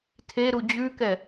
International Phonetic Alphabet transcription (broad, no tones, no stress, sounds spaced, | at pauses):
tʰ e ɾ u d͡ʑ ʉ k ɛ